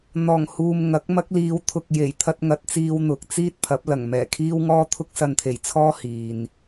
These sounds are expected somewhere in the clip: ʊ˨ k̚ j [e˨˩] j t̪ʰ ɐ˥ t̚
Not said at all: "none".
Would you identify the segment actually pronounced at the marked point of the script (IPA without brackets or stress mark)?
e˨˩